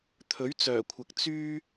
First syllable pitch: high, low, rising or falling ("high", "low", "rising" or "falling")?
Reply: rising